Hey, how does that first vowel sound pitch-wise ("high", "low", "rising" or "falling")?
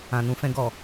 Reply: low